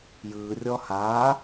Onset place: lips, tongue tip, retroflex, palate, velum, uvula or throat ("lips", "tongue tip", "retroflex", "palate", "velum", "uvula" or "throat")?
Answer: palate